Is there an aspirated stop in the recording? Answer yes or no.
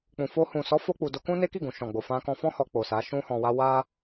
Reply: no